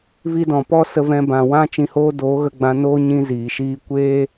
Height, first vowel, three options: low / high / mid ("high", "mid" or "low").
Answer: high